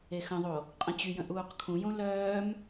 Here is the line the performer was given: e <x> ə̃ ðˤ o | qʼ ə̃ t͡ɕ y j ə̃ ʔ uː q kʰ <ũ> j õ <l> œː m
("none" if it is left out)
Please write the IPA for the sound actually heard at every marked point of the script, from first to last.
x, ũ, l

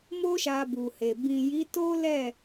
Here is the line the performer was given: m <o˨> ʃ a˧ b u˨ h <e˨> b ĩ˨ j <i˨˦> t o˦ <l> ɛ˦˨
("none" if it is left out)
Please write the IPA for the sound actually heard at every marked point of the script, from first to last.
o˦, e˨, i˨˦, l

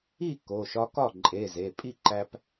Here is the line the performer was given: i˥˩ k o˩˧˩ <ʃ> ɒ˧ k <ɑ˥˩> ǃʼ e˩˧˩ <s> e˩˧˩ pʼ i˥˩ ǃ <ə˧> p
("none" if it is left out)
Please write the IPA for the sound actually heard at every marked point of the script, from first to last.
ʃ, ɒ˥˩, z, æ˧

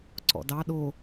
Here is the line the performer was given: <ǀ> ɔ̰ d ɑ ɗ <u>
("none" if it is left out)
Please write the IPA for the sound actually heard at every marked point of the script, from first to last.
ǀ, o

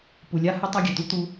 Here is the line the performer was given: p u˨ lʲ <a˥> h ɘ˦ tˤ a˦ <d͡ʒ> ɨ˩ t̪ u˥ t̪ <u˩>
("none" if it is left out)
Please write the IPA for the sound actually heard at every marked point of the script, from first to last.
a˦, ɡʲ, u˦

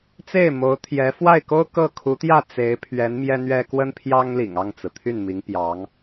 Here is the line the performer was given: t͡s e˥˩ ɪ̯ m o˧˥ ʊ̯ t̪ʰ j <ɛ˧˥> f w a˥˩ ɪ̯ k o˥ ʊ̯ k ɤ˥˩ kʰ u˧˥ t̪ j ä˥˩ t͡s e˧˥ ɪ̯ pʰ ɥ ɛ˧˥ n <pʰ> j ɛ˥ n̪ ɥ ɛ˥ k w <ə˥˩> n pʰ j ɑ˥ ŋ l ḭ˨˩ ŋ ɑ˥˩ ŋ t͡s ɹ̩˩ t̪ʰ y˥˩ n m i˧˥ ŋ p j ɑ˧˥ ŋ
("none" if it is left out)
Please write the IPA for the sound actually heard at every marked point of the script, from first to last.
ɛ˧˥, m, ə˥

